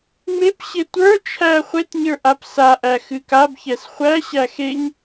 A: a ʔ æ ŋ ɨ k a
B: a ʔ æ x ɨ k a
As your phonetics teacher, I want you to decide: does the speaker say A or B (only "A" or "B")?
B